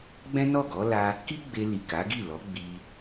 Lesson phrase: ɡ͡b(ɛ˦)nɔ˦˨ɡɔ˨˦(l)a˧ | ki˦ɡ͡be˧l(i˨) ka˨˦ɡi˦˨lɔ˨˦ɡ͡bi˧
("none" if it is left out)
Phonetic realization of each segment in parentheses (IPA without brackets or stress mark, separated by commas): ɛ̃˦, l, i˨